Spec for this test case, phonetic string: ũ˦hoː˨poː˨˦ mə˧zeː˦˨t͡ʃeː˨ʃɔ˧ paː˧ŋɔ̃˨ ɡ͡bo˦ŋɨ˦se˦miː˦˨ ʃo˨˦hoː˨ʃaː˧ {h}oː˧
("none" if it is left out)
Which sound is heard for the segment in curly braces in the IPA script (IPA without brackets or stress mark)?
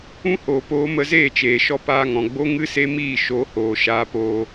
p